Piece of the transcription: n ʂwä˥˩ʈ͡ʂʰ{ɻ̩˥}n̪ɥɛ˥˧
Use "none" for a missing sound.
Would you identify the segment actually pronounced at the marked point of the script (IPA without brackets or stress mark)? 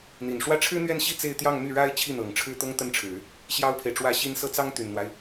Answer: ɻ̩˥